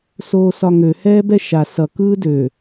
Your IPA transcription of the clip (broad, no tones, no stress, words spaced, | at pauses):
soːsɒŋø hɛːbɛʃa sʌ kɯːdø